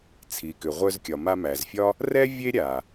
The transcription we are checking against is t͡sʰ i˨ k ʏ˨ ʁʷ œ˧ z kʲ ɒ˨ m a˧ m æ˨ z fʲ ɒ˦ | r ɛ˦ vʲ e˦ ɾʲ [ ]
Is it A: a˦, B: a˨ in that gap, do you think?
B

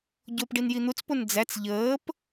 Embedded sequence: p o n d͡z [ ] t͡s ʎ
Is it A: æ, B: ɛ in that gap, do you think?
A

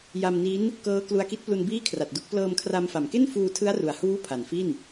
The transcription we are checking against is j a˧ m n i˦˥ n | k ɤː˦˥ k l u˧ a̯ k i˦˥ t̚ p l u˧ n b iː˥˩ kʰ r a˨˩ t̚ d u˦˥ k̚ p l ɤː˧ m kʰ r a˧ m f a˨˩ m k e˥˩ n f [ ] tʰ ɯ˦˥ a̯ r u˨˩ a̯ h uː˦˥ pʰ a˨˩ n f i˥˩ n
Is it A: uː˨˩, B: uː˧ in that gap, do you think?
B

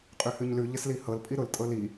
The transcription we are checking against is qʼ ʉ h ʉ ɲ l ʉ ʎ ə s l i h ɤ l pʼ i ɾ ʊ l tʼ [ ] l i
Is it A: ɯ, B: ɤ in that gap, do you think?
B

